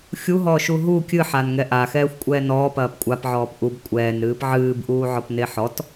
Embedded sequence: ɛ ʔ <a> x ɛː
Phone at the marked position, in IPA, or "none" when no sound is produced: a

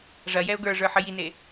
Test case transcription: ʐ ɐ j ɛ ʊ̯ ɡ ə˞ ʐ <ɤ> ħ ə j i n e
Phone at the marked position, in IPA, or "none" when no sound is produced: ə˞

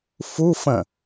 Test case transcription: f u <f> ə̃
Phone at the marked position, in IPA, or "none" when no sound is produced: f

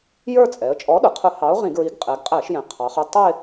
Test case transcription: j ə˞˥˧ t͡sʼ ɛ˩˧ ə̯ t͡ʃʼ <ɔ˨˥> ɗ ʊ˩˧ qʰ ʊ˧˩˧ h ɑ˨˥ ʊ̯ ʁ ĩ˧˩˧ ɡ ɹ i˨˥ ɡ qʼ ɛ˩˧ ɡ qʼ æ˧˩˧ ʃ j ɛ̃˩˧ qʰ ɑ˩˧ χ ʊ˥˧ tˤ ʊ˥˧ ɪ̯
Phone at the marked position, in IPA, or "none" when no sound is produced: ɔ˨˥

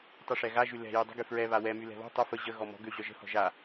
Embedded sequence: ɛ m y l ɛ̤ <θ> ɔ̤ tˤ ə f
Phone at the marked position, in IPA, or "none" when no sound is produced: β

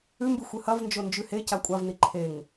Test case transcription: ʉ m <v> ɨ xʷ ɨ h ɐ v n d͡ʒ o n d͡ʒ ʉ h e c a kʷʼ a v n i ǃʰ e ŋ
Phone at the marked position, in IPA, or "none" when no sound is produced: b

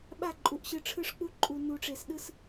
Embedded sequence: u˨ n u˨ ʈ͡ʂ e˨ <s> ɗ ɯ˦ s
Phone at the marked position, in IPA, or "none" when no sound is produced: s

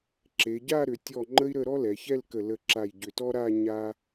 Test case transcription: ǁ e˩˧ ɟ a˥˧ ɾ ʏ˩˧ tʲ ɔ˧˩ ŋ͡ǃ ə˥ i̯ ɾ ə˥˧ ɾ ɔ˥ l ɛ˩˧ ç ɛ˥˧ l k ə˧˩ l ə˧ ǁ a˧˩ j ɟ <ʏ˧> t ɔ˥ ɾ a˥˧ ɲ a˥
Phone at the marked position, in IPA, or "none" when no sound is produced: ʏ˧˩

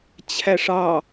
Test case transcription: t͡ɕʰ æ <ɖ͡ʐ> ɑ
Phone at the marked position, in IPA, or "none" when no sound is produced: ʂ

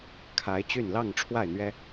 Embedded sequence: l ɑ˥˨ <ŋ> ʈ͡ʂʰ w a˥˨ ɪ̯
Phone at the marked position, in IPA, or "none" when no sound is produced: ŋ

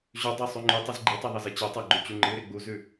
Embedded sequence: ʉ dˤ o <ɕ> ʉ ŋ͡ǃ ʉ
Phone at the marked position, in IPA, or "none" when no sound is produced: sˤ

